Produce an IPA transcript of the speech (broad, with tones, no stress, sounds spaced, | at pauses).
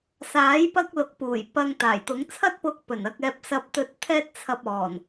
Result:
s aː˨˥ j p ɐ˧ k̚ l ʊ˨˥ k̚ p uː˨˩ j p ɐ˨ ŋ t̪ aː˨˩ j t̪ ʊ˨˥ ŋ t͡sʰ ɐ˥ t̚ p ʊ˧ k̚ p ɵ˨˩ n ɐ˨ k̚ ɛː˨ p̚ s ɐ˨ p̚ t̪ ɵ˨ t̚ t̪ʰ ɛː˧ t̚ t͡sʰ ɐ˨ p̚ ɔː˨˩ n